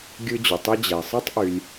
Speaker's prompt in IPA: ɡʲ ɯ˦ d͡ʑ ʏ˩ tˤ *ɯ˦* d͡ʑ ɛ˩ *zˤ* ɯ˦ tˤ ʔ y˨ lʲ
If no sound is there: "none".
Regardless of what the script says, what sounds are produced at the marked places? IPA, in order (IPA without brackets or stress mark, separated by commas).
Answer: ɯ˦, sˤ